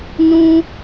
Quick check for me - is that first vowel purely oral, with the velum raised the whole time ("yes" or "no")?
no